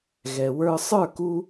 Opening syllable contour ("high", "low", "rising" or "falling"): low